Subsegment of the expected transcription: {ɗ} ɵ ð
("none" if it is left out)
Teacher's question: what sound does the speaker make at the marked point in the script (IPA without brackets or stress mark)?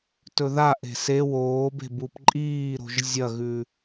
t